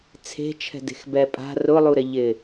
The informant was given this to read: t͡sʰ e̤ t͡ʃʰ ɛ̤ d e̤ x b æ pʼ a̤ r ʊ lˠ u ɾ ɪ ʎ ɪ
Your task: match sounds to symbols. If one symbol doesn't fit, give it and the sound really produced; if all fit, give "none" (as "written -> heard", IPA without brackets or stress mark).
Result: æ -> ɛ